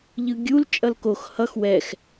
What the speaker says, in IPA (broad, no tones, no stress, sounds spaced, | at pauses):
ʎ ɯ ɡʲ u l t͡ʃʼ ʌ l k o x h ʌ x w ɛ x